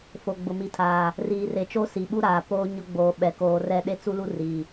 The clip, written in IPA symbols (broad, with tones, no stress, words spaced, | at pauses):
fo˨ɡ͡bʊ˨mi˨tʰaː˨ | riː˨re˨t͡ʃo˦ si˨ɓu˦ɾaː˨ poː˦ ɲʊ˦ ɡ͡boː˨ɓɛ˨ koː˨rɛ˦ ɗe˦ t͡su˦lu˦ ri˨